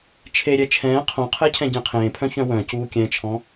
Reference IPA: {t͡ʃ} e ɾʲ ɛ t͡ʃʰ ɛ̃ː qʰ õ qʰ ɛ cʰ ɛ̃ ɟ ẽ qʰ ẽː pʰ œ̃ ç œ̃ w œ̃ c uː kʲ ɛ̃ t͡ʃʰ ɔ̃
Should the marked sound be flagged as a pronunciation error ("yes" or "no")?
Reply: yes